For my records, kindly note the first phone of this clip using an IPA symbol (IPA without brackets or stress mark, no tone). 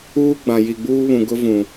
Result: uː